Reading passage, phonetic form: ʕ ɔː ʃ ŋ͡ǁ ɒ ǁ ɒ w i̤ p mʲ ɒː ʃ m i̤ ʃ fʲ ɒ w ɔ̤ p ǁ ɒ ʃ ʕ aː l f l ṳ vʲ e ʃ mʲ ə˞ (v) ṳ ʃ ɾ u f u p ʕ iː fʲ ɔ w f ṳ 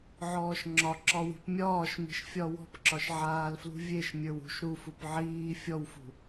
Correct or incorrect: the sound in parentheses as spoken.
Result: incorrect: w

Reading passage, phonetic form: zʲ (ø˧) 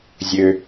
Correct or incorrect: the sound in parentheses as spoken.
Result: correct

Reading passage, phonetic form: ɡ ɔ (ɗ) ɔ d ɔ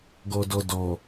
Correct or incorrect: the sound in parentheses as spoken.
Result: incorrect: d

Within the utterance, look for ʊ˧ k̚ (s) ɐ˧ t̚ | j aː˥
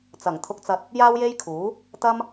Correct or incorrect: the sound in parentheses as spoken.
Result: incorrect: t͡s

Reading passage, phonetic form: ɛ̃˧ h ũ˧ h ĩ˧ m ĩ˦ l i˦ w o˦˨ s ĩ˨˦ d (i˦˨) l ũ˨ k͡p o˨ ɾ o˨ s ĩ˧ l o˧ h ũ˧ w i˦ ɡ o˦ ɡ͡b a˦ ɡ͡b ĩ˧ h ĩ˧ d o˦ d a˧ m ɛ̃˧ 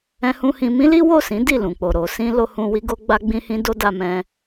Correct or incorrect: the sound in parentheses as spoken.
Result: correct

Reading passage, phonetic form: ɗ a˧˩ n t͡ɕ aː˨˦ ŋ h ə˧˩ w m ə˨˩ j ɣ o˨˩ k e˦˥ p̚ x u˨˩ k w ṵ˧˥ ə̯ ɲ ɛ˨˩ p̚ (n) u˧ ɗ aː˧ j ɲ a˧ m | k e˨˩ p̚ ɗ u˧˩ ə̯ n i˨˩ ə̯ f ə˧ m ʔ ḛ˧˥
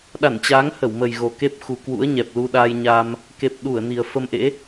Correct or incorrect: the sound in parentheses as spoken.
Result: incorrect: l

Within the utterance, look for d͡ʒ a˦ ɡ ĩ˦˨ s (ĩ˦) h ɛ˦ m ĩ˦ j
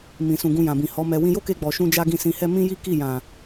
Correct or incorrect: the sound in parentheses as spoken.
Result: incorrect: ĩ˧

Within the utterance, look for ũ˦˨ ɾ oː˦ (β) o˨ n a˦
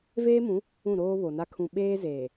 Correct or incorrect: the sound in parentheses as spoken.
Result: correct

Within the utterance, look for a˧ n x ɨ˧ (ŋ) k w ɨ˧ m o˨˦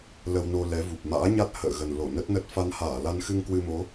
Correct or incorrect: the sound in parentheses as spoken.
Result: correct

